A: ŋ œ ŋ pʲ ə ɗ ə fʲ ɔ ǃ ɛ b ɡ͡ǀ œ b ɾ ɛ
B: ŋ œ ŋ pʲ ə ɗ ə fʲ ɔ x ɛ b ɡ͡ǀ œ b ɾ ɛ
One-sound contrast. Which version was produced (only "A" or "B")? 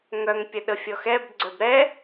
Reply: B